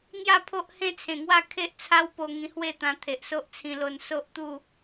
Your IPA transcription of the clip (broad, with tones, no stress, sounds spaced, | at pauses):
ŋ j a˥˧ pʰ o˦ ʔ h ẽ˦ t͡sʰ ẽ˨˩ ŋ w a˥˧ kʰ e˦ ʔ t͡sʰ a˦ w p o˧ ŋ ĩ˧ h w e˥˧ t̪ ã˧ t̪ʰ e˨ ʔ s o˦ ʔ t͡sʰ ĩ˧ l o˧ n s o˦ ʔ t̪ u˥˧